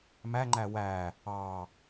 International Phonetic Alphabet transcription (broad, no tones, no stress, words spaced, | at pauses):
mæŋ͡ǃæ wæ | ɑ